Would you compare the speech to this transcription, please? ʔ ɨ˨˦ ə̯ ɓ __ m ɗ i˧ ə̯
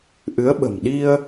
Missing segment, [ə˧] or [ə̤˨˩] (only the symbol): ə̤˨˩